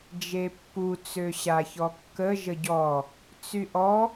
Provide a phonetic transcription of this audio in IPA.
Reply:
d͡ʒ e pː u t͡s ø ɕ a ç ɔ kː ə ʒ ə ɟ ɔ | t͡s y ʔ ɔ

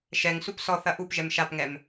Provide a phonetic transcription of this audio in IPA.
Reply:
ʃ ɛ ŋ s u p s ɔ θ ɐ ʔ u p ʒ ɛ m ʃ a p ŋ ɛ m

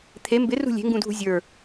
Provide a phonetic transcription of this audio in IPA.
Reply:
t̪ʰ e m b ɪ r ṳ lʲ e̤ ŋ ɡ ũ dʱ ṳ zʲ ə˞

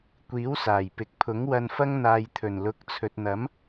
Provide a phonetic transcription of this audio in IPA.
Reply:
kʷ iː˨˥ w s aː˨˩ j p ɪ˨˥ k̚ pʰ ʊ˨˥ ŋ w ɐ˧ n f ɐ˥ ŋ n̪ aː˧ j t̪ʰ ɵ˨˩ n l ʊ˨˥ k̚ t͡sʰ ɵ˨ t̚ n̪ ɐ˨˥ m

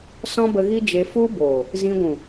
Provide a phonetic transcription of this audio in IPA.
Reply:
s ɔ̃˦ b ə˧ ɣ i˦ d͡ʒ e˧ f u˦ b oː˨ | z ĩ˧ ɡʷ ũ˨

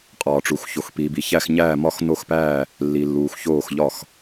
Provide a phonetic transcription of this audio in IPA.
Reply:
qʼ ɒː˨ ʈ͡ʂ u˨ x ç o˨ x p iː˨ b i˨ ç æ˥˩ x ɲ æː˥˩ m ɒ˥˩ x n o˥˩ x p æː˥˩ | lː i˨ lː uː˨ x ç oː˥˩ x ʎ ɒ˥˩ x

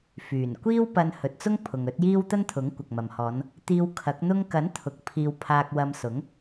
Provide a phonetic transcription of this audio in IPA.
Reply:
f yː˨˩ n kʷ iː˥ w p ɐ˧ n h ɵ˨ t̚ t͡s ʊ˥ ŋ pʰ ʊ˨ ŋ ɵ˨˥ t̚ j iː˥ w t̪ ɐ˥ n t̪ʰ ʊ˨˥ ŋ kʷ ɐ˨ k̚ m ɐ˨ m h ɔː˨˧ n | t̪ iː˧ w kʰ ɐ˨˥ k̚ n̪ ʊ˥ ŋ k ɐ˨˥ n t̪ʰ ʊ˨ k̚ pʰ iː˧ w pʰ aː˧ k̚ w ɐ˧ m s ʊ˨˥ ŋ

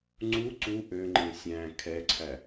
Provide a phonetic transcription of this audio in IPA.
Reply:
ŋ͡ǀ u ǀ u ʔ ø ŋ͡ǃ ẽ sʲ æ̃ kʰ ɛ ǀʰ æ

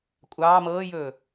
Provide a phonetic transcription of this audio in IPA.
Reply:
kʷʼ ɑː m ɤː j ɵː

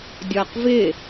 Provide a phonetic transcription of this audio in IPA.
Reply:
dʲ ɒː q v ɪ

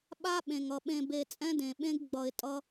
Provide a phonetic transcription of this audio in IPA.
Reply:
ɓ a˦ ɓ ẽ˨ ŋ ʌ˨ ɓ ẽ˨ b e˨ t͡sʼ ɛ̃˦ d ẽ˨ ɓ ẽ˦ ɡ ɡ͡b ʌ˨ ɪ̯ tʼ ʌ˦

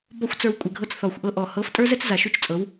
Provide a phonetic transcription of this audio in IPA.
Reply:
b ɔ˧ xʷ t͡s ə˞˧ w kʷʼ ɛ˨ ɡʱ ɤ˧ t͡s θ ɔ˨ xʷ ʔ ɤ˦ ʔ ɔ˨ h ɤ˨˦ f tʼ ə˞˦ z ɛ˦ t͡s z a˨ ʃ y˦ t͡ʃ t͡sʼ ɤ˨˦ w

